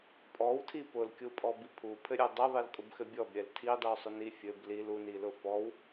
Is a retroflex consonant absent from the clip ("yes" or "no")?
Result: yes